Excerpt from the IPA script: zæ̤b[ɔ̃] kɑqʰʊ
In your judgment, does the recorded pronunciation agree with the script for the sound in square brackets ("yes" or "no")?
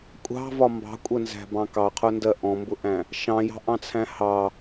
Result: no